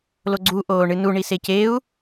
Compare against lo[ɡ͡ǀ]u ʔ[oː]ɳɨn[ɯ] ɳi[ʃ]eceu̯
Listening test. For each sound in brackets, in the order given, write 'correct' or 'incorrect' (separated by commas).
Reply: correct, correct, incorrect, incorrect